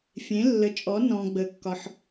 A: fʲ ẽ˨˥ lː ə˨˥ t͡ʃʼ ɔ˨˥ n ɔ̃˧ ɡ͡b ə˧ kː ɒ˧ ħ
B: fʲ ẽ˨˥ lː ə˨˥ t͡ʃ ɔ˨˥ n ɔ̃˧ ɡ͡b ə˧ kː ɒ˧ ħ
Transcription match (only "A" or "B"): A